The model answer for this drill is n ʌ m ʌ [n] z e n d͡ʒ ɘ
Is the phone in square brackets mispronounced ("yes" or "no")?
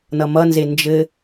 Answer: no